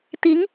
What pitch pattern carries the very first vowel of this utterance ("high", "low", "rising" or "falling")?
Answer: rising